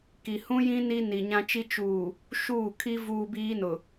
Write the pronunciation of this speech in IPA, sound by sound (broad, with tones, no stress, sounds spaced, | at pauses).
k i˨ h ũ˦ j ĩ˦ n i˦ n i˨ ɲ ã˦ t͡ʃ i˦ t͡ʃ uː˨ | ʃ uː˦˨ kʰ i˦ v uː˦ b iː˦ n ʊ˨